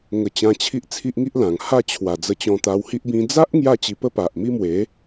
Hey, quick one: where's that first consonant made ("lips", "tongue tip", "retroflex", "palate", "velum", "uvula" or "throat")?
velum